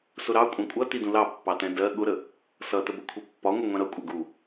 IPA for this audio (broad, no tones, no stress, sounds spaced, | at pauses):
s ʊ ɾ ɑ kʷʼ æ̃ kʷʼ ʌ t i d ũ l ɑ pː ɑ t ɛ̃ d ɜ ɠ ʊ ɾ ə | s ʌ t ə b ə kʷʰ i pː ɒ ŋʷ ʌ ŋʷ ɛ̃ ɾ ʌ kʷʼ ɛ ɡ u